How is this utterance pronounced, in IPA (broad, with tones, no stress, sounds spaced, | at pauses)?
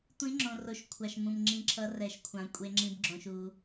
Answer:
tʷ ĩ˦˥ ŋ͡ǁ õ˧ r o˧ ʃ kʷʰ a˧ ʃ m ũ˧ m ŋ͡ǁ ĩ˦˥ ǁʰ ʌ˦˥ r ɛ˦˥ ʃ kʷʰ ã˧ kʷʼ e˦˥ ŋ͡ǁ ĩ˦˥ b ɡ͡ǁ õ˧ ʃ u˧